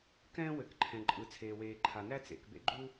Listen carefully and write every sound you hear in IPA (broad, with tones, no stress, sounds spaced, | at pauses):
k ɛ̃ː˥ w ɘ˩ k ǃʰ ɛ̃˩ ǃʼ ɯ˩ t͡sʰ eː˩ w eː˩ ǃʰ a˩ n æ˥ t͡s ḛ˩ k b ḛ˥ ɡ͡ǃ u˥